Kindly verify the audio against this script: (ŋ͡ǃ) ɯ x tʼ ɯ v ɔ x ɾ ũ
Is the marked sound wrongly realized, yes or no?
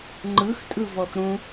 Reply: no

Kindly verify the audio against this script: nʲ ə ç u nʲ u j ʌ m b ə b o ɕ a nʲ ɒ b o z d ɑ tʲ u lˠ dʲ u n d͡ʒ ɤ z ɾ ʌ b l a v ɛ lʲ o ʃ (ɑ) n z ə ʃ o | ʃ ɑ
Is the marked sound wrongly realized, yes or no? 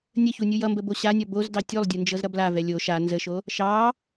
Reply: yes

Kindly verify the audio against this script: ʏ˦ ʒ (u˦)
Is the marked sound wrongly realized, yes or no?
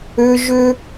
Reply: yes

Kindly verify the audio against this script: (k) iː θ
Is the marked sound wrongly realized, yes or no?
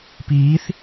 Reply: yes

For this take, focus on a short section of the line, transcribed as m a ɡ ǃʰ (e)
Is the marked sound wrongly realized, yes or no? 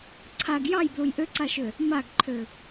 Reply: yes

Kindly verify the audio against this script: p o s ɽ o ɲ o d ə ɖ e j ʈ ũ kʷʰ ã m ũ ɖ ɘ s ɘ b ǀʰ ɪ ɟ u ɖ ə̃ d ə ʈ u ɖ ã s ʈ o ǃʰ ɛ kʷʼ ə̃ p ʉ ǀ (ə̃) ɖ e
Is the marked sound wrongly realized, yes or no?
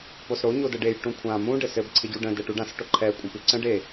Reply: no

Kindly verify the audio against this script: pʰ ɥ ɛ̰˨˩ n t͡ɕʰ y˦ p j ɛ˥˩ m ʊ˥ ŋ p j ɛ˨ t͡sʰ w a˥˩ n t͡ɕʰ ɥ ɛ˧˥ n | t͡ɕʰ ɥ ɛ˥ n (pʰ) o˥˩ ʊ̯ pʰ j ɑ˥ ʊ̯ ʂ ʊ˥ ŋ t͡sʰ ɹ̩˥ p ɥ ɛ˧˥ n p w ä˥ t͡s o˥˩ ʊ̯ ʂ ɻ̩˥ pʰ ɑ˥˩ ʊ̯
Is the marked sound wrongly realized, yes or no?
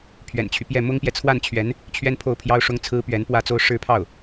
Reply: no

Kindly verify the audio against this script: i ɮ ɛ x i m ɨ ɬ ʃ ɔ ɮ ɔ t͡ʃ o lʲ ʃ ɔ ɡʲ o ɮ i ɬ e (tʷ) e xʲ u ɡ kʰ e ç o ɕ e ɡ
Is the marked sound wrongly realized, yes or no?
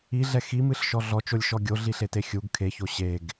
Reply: yes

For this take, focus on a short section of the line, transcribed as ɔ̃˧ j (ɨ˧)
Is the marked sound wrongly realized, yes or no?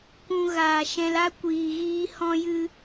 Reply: no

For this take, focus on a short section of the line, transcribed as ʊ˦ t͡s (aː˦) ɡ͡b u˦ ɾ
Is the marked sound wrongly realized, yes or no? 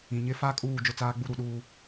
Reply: no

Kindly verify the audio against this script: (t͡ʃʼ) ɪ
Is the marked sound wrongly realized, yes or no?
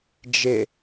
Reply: yes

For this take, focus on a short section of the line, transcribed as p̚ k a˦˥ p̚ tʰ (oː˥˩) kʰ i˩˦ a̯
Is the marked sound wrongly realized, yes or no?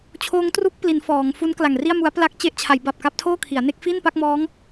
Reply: no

